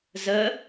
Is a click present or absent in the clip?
absent